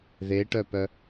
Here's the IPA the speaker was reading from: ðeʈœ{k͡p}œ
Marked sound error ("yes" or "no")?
yes